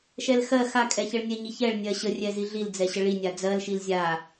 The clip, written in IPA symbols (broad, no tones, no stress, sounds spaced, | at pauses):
ʃ ɛ l x ɜ x a kʼ ɛ ç ə ɭ nʲ ɛ ɲ i ç ɛ ɭ nʲ ɜ ɕ ə rʲ ɛ z i ɮ i l d͡z ɛ ɕ ə ɭ i nʲ a d͡z ɜ l ʃ i l zʲ a